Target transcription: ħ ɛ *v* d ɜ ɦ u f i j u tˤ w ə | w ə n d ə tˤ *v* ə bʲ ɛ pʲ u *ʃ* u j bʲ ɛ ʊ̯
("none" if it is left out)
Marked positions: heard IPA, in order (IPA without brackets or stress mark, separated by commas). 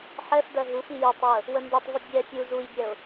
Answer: f, v, z